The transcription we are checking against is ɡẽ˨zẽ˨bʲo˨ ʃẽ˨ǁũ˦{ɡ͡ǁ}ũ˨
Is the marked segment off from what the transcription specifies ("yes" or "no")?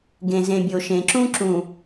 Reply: yes